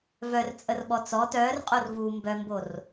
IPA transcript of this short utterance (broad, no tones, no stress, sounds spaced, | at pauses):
v œ r t͡sʼ ə r ɓ ɔ t͡s ɔ t œː r qʼ o r v uː m b œ m b o r